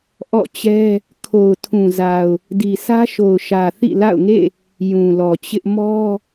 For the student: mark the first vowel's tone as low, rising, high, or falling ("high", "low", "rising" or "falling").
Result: falling